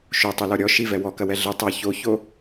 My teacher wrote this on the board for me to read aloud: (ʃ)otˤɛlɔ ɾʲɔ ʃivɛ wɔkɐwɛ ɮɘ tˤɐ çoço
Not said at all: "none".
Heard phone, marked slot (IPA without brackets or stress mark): ʃ